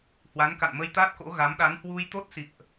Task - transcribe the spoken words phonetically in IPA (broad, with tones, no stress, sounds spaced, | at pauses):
h w a˨˦ n k a̰˧˨ n m ə˧ j t̪ aː˦˥ t̚ k o̰˧˥ ɣ a˨˦ m ɗ a˨˦ n h w u˧ j t̪ o˦˥ t̚ s ḭ˧˨ ə̯ ʔ